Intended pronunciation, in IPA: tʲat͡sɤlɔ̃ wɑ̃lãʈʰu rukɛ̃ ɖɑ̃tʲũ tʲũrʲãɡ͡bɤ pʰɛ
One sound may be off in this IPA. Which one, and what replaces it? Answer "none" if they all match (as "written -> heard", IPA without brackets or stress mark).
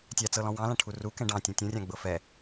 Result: pʰ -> f